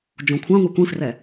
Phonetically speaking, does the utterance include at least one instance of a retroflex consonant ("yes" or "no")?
no